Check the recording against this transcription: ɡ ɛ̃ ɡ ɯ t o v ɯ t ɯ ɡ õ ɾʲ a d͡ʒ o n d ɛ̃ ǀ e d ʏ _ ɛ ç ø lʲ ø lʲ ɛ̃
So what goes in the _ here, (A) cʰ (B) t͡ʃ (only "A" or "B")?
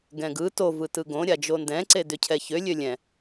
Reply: A